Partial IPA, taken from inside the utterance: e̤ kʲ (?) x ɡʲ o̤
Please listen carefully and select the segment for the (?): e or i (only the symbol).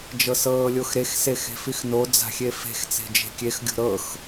e